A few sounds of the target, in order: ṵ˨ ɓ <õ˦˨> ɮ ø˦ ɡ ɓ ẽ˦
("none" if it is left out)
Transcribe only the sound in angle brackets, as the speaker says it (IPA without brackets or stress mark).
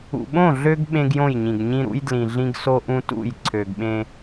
õ˦˨